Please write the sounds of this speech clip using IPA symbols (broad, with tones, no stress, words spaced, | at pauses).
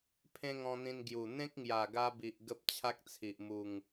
pʰẽ˦ŋɔ̃˧n̪ĩ˧n ɡju˨˩ n̪ẽ˦k̚ŋja˨˩ɡa˧bi˨ʔ ɡə˦p̚ t͡ɕʰa˦k̚t͡sʰi˨ʔ mu˨˩ŋ